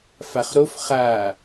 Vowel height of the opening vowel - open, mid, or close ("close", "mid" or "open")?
open